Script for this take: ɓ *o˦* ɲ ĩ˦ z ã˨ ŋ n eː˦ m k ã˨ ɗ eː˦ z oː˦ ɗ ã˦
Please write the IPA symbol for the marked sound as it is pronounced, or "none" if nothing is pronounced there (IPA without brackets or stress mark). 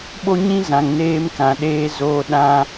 o˦